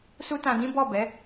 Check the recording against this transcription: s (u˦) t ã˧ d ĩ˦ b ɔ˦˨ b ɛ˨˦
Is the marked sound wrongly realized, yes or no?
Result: no